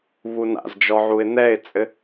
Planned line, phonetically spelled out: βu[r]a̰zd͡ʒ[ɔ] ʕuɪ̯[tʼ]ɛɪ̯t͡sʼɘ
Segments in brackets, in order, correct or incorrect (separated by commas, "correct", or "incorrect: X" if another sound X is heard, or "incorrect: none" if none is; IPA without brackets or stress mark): incorrect: n, correct, incorrect: n̪